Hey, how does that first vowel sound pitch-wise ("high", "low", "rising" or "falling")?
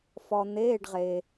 low